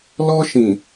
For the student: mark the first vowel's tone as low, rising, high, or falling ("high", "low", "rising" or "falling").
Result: high